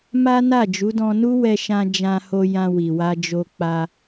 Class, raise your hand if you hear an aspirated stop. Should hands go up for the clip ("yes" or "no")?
no